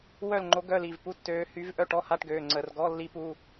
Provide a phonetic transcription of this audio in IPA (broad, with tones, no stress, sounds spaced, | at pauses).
w œ˥˨ l ŋ͡ǃ o˧˥ ɡ œ˧˥˧ l i˩˧˩ v p u˧˥˧ tː øː˧˥ h y˧˥ v ʔ œ˥˨ ʈ ɔ˧˥˧ h a˧˥˧ ʈ ɡ øː˩˧˩ ŋ͡ǀ ə˧˩˧ r ɡ ɔ˧˥˧ lː i˧˥ p u˩˧˩